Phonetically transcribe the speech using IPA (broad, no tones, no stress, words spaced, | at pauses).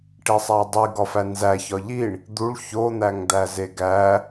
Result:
ʈesˤædˤi ɡɒfænzæçɒ ʎiɳ | d̪uɭ çon̪æŋd̪æze ɡæ